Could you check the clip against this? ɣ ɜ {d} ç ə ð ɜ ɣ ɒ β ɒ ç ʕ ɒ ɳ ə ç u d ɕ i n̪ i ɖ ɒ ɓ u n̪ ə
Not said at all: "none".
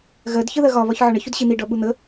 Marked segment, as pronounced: d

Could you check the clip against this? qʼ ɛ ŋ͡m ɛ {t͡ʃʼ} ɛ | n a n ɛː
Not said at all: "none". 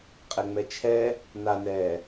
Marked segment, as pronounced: t͡ʃʰ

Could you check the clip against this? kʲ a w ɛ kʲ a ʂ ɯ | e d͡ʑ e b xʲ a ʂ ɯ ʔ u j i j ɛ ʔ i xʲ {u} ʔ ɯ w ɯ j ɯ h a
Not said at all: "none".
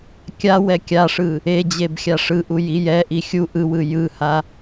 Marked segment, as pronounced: u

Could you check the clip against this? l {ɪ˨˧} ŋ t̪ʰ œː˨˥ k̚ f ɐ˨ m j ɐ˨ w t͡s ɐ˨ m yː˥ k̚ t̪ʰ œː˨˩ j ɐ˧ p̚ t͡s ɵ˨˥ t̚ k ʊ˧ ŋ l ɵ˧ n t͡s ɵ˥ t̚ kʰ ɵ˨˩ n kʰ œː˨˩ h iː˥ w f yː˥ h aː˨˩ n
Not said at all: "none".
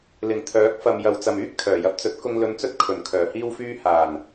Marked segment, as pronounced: ɪ˨˩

